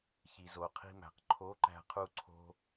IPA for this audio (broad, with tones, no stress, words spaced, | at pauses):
çi˩zo˩qʰi̤˧mæ̤˩q ǃʰo˧˥ǃæ̤˧qʰu˧ǀʰo̤˧